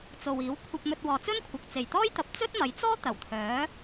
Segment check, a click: absent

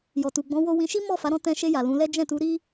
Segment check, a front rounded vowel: absent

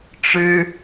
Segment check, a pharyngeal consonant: absent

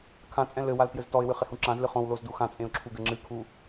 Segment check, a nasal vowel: present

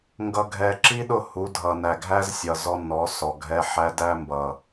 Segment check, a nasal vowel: absent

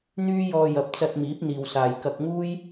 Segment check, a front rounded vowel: present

